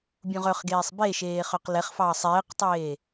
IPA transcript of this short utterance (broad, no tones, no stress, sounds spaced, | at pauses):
bʲ ũ ʁ œ χ ɡ eː sˤ b e ʃ eː χ œ q l ɛ χ f ɑː sˤ eː q tˤ eː